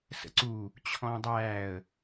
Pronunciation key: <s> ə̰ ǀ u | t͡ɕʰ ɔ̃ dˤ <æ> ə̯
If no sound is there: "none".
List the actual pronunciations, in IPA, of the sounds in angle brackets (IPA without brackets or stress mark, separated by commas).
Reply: s, æ